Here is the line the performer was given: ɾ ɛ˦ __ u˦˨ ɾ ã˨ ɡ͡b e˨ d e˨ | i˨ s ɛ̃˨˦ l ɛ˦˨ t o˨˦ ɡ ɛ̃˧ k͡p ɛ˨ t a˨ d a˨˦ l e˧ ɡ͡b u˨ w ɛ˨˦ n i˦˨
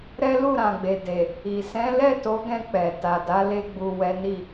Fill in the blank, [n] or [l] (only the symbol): l